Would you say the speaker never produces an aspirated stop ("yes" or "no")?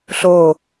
yes